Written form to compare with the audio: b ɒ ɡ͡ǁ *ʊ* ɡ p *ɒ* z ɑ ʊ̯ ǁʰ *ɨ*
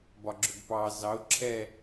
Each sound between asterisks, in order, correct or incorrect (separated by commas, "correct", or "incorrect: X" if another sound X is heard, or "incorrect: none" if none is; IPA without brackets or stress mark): correct, incorrect: ɑ, incorrect: ɛ